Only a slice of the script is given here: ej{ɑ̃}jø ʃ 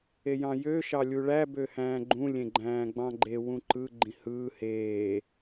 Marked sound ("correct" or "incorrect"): correct